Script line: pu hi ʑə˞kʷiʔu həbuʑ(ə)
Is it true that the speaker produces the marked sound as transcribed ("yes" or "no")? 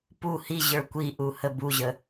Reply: yes